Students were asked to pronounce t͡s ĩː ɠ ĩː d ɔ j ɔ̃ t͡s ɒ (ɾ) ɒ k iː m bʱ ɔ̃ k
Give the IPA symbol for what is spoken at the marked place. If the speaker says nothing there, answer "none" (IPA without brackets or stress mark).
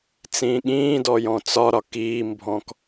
ɾ